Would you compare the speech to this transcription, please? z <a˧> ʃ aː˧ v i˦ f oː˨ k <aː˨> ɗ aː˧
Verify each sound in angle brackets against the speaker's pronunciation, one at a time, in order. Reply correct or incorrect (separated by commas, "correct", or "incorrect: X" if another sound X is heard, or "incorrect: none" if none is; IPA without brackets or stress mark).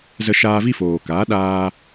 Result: incorrect: ə˧, incorrect: aː˨˦